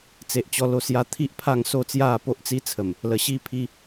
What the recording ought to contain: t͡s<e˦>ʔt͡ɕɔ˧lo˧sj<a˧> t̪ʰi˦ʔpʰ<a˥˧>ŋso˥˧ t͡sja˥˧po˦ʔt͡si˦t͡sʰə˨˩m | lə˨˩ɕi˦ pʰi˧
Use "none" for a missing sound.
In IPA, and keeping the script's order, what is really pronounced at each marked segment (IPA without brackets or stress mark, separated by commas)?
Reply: e˨, a˧, a˥˧